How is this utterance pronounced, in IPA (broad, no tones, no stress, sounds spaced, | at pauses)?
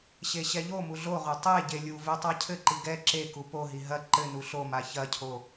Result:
ɕ e ɕ ɛ ʎ o m u ɮ o ʁ o tˤ e ɟ e lʲ u v e tˤ a cʰ ɘ ǃ i ɡ ɛ ǁ e k u p o ɦ i ɦ ɐ ǃ ɘ n u ɬ o m a ç ɐ cʰ o